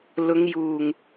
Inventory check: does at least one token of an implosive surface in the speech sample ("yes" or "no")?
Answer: no